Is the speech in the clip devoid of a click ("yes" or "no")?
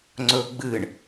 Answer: no